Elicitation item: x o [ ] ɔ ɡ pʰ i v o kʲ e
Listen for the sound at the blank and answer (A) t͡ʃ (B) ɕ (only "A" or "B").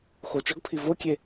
A